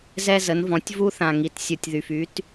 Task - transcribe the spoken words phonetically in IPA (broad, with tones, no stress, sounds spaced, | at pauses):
z ɛ˧ z ə˩˧ n v ɔ̃˩˧ tʲ v u˧ θ ã˩ ŋ i˩ t sʲ u˩ tʲ ð y˩ f y˩˧ t